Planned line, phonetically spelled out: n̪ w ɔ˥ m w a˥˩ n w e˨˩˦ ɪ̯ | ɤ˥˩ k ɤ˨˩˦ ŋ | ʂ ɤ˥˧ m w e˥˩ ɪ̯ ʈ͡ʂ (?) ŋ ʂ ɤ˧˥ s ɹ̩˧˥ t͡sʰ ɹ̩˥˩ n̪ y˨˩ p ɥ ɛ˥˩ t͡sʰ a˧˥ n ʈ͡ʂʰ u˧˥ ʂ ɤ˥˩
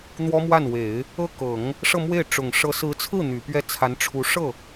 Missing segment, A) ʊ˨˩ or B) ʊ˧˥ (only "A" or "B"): A